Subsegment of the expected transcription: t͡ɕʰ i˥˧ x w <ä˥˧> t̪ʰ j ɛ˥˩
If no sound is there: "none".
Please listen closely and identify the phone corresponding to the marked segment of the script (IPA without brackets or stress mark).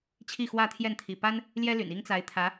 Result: ä˥˧